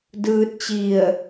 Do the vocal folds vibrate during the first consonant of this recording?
yes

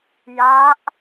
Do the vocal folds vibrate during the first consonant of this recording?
yes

